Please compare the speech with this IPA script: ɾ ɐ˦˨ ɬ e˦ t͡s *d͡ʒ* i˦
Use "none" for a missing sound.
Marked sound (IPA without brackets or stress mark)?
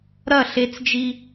d͡ʒ